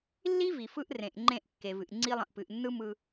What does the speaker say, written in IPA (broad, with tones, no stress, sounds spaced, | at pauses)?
lː i˦ v i˨ f ɯ˦ ʔ r ẽ˨ ʔ ŋ͡ǃ ẽ˦˨ ʔ kː e˨ v ɨ˨ ʔ ŋ͡ǀ i˦ lˠ ə̃˨ ʔ p ɨ˨ ʔ nː ɯ˦ m ɯ˨